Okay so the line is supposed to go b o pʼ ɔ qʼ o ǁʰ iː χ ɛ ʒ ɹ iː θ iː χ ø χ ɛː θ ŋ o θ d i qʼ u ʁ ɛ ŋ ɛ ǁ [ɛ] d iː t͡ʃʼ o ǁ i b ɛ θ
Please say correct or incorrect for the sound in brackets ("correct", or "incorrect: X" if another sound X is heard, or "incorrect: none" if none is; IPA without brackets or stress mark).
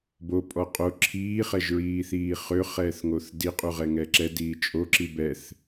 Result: correct